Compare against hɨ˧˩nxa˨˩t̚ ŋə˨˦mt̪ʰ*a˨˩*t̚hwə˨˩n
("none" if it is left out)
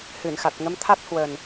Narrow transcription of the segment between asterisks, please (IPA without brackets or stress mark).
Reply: a˦˥